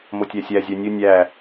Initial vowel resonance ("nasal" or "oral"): oral